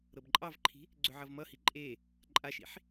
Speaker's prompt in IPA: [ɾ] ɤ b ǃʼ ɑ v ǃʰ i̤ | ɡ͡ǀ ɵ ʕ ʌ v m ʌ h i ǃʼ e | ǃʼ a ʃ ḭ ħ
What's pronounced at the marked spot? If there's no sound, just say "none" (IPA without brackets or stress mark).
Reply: ɾ